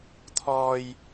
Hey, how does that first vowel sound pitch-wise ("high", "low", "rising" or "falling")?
high